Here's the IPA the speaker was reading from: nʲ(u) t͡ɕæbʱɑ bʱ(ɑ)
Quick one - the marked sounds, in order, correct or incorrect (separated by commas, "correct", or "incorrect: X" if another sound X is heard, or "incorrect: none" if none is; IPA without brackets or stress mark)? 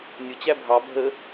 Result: incorrect: ʊ, incorrect: ə